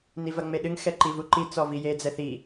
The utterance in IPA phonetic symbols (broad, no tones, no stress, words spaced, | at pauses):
nivɐŋ͡meɗɨŋ xɛǃivuǃi t͡sɔvije d͡zɛθi